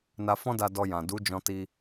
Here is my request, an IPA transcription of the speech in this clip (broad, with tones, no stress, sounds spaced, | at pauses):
n a˧ f ɔ̃˦ d a˧ d ɔ˧ j ã˨ d u˨˦ d͡ʒ ɔ̃˧ t i˧